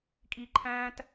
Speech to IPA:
kʼ i˦ ǃʰ æ̃ː˦ t

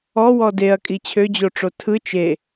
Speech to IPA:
ɔ w ɔ d e ɐ̯ kʼ i t͡ɕʰ ø d͡ʑ o ʈ͡ʂ o tʰ ɯ t͡ʃ e

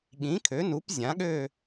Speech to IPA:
ɠ ĩ˩˥ kʰ ø˩˥ n u˩˥ p zʲ ã˩˥ ɠ ø˥˨

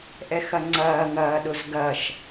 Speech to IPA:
ʔ ɛ x ɐ ŋ͡ǀ ɐː ŋ ɐː ɗ ʊ z ɡ ɐ ʃ

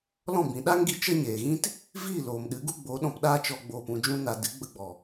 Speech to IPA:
l ɔ̃˦˨ b ĩ˨ ɗ a˦ ŋ ɡ i˧ t͡ʃ ə˦ ɲ eː˨ ɣ ĩ˦ t | v iː˦˨ l oː˨ m ɗ ɨ˨˦ ɡ u˦ ɡ͡b o˨˦ ɗ ɔ̃˧ p ɗ aː˦ t͡ʃ ɔ˧ ɡ͡b oː˨ p ũ˨ d͡ʒ ũ˧ n a˨ d ɨ˨˦ ɡ͡b ə˧ ɡ͡b ɔ˨

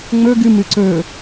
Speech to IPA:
ŋ͡m ɵ ɡ ɨ m ɨ ǀ ɵ

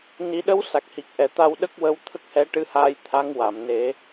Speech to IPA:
n i˨˩˦ ɗ ə˧˥ w s a˨˩ k̚ h i˨˩ k̚ ʔ ɛ˨˩ t̪ a˧ w ɗ ə˦˥ k̚ w ə˧˥ w t̪ʰ ə˦˥ k̚ h ɛ˧˥ ʈ ɨ˧˥ h aː˧ j t̪ʰ a˧˥ ŋ w a˨˩˨ m n e˨˩˦

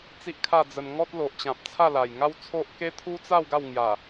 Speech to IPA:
t͡s i˦ ʔ kʰ a˥˧ d͡z ə˧ n ŋ ɔ˦ t̚ l o˨ ʔ t͡ɕ ã˨ p̚ t͡sʰ a˥˧ l a˨˩ j ŋ a˦ w t͡sʰ o˦ ʔ k e˦ t̪ʰ u˦ t͡s a˥˧ w ɡ a˥˧ w ŋ j a˨˩

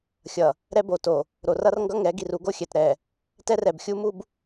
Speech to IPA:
xʲ ʌ˨ | ɾ ɛ˦ b o˨ t o˨ | ɾ o˨ r ʌ˦ r ŋ ɡ ʌ˦ ŋ ɛ˨˦ ɡ i˨ r u˦ ɡ o˦ xʲ ɛ˨ t ɾ ɛ˨ | t ɛ˦ r ɛ˨ b xʲ u˦ m u˦ b

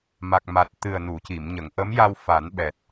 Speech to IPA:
m a˨˩ k̚ m a˨˩ t̚ t̪ ɨ˨˩ ə̯ n u˨˩˨ c i˨˩˨ m ɲ ə˨˩˨ ŋ ʔ ə˧˥ m j a˧ w f a˨˩˦ n ɓ ɛ˨˩ t̚

